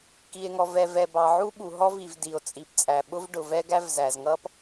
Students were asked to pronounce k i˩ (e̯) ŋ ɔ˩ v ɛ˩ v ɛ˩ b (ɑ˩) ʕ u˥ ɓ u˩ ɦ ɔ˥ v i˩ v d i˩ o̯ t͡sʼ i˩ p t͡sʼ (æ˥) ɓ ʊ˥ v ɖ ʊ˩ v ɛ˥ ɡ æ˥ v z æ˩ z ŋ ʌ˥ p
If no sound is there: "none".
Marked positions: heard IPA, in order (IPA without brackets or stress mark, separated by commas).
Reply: e̯, ɑ˩, æ˩